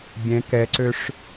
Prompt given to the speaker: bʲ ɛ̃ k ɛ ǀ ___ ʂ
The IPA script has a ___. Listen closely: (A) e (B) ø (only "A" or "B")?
B